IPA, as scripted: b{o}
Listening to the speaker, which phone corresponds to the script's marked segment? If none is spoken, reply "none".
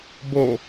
o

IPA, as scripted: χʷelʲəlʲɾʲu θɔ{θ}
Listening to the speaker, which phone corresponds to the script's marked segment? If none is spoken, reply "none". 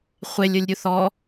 none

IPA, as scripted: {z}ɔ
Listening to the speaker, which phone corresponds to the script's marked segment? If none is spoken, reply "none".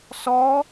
s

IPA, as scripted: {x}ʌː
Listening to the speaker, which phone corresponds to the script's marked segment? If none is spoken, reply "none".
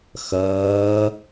x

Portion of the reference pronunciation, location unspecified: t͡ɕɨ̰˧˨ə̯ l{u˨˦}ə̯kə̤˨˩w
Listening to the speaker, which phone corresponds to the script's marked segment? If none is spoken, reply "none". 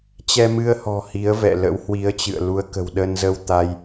u˨˦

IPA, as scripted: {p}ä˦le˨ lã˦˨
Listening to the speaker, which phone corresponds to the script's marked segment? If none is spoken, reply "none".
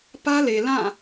p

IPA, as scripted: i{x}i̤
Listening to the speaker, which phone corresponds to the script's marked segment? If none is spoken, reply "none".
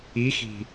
x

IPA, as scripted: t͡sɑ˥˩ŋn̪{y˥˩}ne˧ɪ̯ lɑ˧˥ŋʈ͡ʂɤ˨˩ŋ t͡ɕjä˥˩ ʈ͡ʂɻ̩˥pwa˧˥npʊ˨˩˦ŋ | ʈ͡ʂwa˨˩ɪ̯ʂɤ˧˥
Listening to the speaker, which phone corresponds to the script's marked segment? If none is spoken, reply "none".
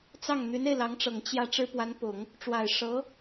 y˧˥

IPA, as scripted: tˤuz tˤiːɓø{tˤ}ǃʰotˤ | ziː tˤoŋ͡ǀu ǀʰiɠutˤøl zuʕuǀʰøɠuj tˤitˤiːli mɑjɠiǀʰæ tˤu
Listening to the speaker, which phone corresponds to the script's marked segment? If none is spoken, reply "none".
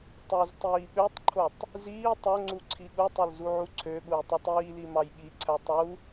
tˤ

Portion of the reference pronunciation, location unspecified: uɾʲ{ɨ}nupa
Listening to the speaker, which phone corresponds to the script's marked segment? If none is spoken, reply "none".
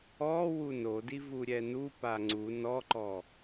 ɛ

